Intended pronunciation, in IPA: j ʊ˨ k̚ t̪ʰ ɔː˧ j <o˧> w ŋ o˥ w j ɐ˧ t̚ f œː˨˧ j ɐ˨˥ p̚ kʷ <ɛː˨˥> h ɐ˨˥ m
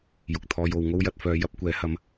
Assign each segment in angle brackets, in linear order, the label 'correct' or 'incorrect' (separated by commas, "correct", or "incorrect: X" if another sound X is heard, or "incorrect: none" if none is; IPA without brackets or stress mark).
incorrect: o˨˧, correct